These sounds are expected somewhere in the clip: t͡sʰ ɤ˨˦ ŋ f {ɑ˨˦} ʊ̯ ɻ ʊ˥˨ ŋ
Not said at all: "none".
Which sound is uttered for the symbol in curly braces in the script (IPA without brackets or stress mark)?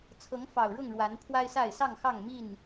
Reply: ɑ˨˩